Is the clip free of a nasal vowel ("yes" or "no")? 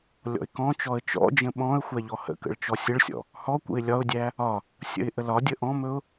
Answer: no